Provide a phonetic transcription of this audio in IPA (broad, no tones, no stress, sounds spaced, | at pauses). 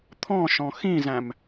t̪ʰ ɔ̃ ʃ ɔ̃ x ĩ z æ̃ m